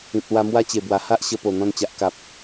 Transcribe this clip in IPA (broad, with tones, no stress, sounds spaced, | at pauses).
ĩ˨ p̚ l w a˧ m w a˦ t͡ɕ e˨˩ b w a˨˩ h a˦ ʔ ɕ ə˧ p o˨˩ n̪ ɔ̃˧ n t͡ɕ a˨ ʔ k a˨ p̚